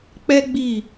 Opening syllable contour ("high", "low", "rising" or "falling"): high